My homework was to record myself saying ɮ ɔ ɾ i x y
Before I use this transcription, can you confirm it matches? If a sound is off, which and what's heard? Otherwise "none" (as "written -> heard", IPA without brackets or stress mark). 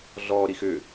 y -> ʏ